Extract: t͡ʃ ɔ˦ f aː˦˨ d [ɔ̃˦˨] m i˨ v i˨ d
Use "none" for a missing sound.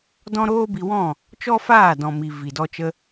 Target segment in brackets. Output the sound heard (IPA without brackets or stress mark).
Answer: ɔ̃˨